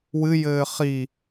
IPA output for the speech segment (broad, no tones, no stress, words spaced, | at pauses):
wɨjɘː χi